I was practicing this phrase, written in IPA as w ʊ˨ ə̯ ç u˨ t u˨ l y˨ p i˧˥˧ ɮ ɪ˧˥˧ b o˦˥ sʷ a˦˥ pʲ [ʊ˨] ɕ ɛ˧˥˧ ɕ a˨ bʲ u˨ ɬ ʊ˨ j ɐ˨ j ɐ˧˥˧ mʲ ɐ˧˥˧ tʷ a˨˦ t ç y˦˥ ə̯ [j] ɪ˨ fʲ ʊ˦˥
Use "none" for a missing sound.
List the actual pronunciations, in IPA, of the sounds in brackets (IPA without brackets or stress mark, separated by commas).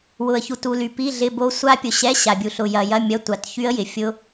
ʊ˨, j